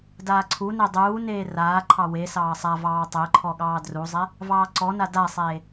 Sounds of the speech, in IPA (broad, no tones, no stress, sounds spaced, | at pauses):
d aː ǀʰ u n e dˤ uː n eː r aː ǃʰ ɑ w e s ɑː sˤ a v ɑː tˤ e ǃʰ ɔ ɠ ɑː d r u zˤ e | v ɑː ǀ ɔ n a d a sˤ eː